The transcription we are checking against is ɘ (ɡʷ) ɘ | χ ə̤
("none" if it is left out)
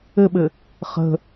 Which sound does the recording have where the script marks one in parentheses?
ɓ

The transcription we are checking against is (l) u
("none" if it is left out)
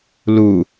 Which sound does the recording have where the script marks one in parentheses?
l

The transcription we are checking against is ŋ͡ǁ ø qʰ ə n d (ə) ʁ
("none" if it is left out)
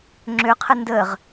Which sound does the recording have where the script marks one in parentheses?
ə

